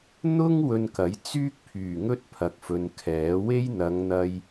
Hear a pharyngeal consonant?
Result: no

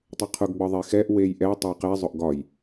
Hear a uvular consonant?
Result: yes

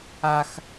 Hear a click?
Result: no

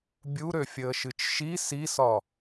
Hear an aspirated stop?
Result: no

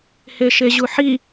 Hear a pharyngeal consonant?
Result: yes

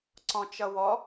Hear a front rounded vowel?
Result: no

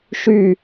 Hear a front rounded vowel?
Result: yes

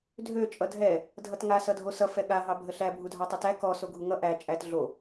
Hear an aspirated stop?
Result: no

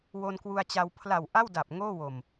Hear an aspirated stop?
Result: yes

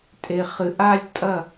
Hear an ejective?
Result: yes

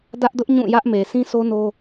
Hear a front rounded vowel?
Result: no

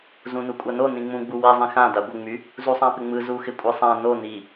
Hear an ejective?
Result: yes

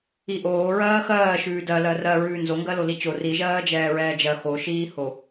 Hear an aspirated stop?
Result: no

